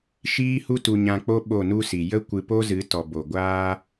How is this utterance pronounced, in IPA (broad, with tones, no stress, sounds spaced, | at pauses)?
ʃ iː˦ h u˦ t u˧ ɲ ã˧ k͡p o˦ ɓ o˦˨ n u˦ s i˨ j ə˦ kʷ ɨ˧ p o˦ z ɨ˨˦ t ɔ˨ b o˨ ɡʷ aː˦